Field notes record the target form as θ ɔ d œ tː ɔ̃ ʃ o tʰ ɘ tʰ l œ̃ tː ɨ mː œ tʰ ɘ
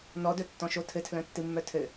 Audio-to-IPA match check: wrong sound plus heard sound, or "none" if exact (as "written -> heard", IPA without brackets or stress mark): θ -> n